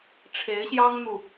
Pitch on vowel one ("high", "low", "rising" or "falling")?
rising